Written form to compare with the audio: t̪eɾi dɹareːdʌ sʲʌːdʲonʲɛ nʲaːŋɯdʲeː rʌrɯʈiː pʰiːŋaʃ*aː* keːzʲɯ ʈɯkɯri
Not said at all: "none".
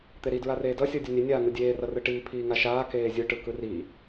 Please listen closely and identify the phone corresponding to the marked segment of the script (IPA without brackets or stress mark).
aː